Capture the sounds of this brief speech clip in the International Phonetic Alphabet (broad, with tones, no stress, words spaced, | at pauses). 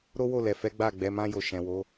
ɾo˦wo˦˨lɛ˨fɛ˨˦ ɡ͡ba˦˨ɡ͡bɛ˨˦mã˦jo˧ ʃɛ̃˨wo˨˦